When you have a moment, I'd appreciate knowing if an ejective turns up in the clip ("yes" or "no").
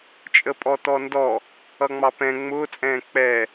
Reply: yes